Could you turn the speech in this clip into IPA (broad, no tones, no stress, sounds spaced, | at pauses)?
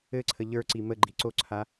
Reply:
ɘ ǀʰ ə ʎ ə˞ ǀ i m ə ɡ͡ǃ i ǀ o ǀʰ a